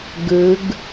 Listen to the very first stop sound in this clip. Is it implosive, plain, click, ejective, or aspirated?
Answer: plain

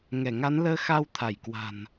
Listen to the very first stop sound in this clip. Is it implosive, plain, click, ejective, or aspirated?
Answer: aspirated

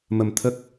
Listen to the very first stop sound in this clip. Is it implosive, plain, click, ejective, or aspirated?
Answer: aspirated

